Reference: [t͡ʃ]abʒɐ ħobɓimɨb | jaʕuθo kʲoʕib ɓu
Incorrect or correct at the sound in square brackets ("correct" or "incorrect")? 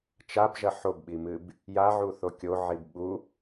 correct